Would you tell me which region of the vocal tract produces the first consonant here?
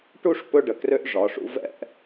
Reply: retroflex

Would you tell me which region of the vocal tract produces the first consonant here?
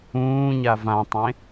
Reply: palate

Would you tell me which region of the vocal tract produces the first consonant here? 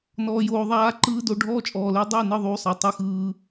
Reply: tongue tip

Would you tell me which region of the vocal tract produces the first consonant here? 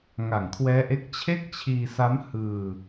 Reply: velum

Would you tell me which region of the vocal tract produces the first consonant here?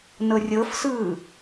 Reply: tongue tip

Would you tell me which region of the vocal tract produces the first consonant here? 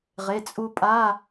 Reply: uvula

